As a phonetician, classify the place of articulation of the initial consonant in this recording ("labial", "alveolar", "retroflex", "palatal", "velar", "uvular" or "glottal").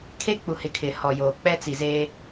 velar